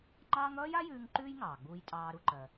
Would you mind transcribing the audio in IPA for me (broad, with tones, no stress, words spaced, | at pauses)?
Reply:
ŋ͡ǃɑː˥ŋ ʌː˥ja˥jʉː˧ŋ ǃʉː˥jŋɑː˩ɡ͡buː˧j tʼɑː˧ɾu˧ǃɜ˩